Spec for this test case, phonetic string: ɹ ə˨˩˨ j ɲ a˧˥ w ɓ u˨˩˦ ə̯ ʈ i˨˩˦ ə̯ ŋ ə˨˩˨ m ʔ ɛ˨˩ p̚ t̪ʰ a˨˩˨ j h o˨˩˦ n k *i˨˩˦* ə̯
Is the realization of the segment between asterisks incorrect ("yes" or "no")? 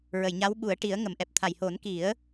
no